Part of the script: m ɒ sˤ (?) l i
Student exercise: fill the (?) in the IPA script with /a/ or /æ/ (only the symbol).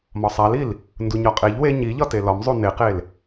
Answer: æ